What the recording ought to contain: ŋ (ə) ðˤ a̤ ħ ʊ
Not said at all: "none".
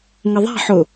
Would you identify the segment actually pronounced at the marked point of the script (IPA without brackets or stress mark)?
ə